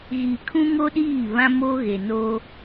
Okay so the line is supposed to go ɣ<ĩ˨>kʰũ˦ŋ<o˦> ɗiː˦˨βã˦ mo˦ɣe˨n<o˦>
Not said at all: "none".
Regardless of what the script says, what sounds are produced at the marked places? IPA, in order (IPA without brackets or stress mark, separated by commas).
i˨, o˦, o˦